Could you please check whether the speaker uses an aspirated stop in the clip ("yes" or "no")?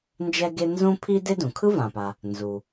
yes